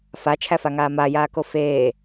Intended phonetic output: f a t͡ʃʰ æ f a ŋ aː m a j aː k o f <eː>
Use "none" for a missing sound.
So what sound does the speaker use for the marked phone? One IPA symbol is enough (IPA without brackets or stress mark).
eː